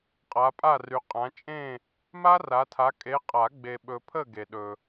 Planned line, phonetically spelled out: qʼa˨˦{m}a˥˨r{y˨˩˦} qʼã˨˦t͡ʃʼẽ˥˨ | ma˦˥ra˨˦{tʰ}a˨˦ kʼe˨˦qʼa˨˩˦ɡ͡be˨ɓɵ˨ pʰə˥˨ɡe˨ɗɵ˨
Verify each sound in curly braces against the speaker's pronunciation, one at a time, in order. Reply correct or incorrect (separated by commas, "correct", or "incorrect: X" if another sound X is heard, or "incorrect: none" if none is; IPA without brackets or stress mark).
incorrect: pʼ, incorrect: y˨˦, correct